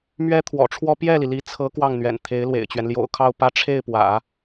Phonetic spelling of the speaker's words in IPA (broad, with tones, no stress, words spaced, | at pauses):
mɥɛ˥t̪ʰwɔ̰˨˩ʈ͡ʂʰwɔ˥ pjɛ˥˩li˩li˧˥t͡sʰɤ˧˥ kwɑ˥˩ŋn̪ɥɛ̰˨˩nt̪ʰe˧˥ɪ̯ lwḛ˨˩ɪ̯t͡ɕɥɛ˦n ljo̰˨˩ʊ̯kʰɑ˥˧ʊ̯pä˥˧ ʈ͡ʂʰe˥˩ɪ̯ pwä̰˨˩˦